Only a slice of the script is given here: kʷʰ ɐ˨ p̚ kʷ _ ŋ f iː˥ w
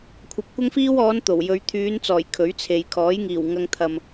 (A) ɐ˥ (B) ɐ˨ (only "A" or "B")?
A